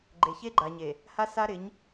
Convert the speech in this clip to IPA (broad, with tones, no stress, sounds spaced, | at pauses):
ɡ͡ǃ e˨ ç e˦ ɡ͡ǃ a˨ ɲ e˨ | h a˦ s a˦ ɾ ɪ˨˦ ɲ